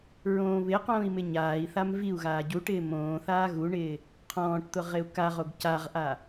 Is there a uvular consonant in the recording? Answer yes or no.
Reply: yes